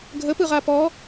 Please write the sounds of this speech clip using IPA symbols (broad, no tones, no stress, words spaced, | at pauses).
ɡʱəpɯʁa pɔ